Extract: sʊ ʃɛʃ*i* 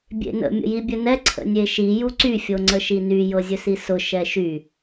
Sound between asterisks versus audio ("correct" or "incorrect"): incorrect